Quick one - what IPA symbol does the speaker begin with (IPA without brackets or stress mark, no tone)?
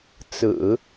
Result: t͡s